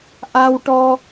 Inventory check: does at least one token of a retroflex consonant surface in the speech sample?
yes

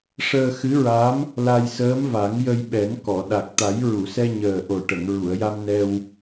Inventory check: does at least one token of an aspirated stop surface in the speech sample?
no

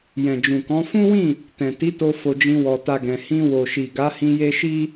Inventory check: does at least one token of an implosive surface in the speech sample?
no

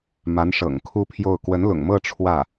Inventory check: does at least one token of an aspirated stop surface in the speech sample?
yes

